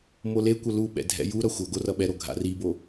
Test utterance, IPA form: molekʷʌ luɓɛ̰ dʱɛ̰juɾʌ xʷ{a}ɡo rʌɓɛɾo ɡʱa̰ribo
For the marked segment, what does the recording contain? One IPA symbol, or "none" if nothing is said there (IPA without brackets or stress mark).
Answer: ʌ